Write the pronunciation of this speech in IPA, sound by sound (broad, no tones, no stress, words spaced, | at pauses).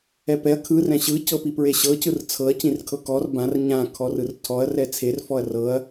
ɛpɛɐ̯ kʰɯ rɛ̃ɕɯ cɤpipɹeɕɤ cɯrt͡sʰɤɐ̯ cĩrkʰɤkɔr bãr ɲã kʰɔrɯrtʰɔɐ̯ rɛt͡sʰer fɔɐ̯rɤɐ̯